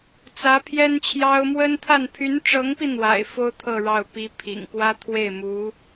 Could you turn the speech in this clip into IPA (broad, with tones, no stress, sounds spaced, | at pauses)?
t͡s ä˧˥ pʰ j ɛ˥ n t͡ɕʰ j ɑ˥ ʊ̯ m w ə˥ n t̪ʰ a˥˩ n pʰ y˧˥ n ʈ͡ʂ ɤ˧˥ ŋ p i˧ n̪ w a̰˨˩ ɪ̯ f o˥ ʊ̯ t̪ʰ ɤ˥˧ ɻ ɑ˥˩ ʊ̯ p i˥ pʰ ḭ˨˩ ŋ k w ä˥ t̪ʰ w e˥˩ ɪ̯ m u˧˥